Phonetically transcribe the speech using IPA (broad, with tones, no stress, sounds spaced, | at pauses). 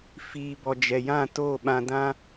f iː˨ b ɔ˨ d͡ʒ ɛ˨ j ã˦˨ t oː˦˨ ɓ ã˧ d ã˦